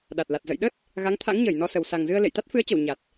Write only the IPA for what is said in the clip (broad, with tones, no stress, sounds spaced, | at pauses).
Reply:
ɗ a˨˩ t̚ l a˨˩ t̚ z ə̰˧˨ j ɗ ə˦˥ t̚ | ɣ a˨˦ ŋ t̪ʰ a̰˧˥ ŋ ɲ əː˧˩ j n ɔ˧ s ə˨˩ w s a˨˩ ŋ z ɨ˧ ə̯ l ḛ˧˨ j t̪ a˦˥ t̚ f ɨ˨˦ ə̯ t͡ɕ ə˧˩ w ɲ a˨˩ t̚